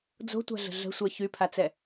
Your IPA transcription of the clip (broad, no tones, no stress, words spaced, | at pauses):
d͡zo̤tʷa̤ɮə̤ ɮə̤sʷɛ çypʰat͡sɛ